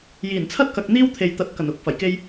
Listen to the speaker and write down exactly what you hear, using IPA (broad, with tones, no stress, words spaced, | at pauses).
jiː˨˩nt͡sʰɐ˥t̚kɐ˨k̚ n̪iː˥wt̪ʰe˨jt̪ɐ˨t̚kɐ˨˩n ʊ˨˥k̚ fɐ˨˩jke˧j